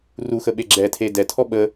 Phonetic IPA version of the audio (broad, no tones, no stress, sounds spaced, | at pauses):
r u x ə ɓ e ɡ͡ǁ ɛ tʰ e d ɛ tʰ ɔ ɓ ə